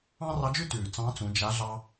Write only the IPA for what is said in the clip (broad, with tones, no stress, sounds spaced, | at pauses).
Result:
ɑ̃˥ r ɑ˧˥ d͡ʒ ʉ˥ t ʉː˩ t͡s ɑ̃˧˥ t͡s ũ˩˧ d͡ʒ a˧˥ ɮ ɑ˧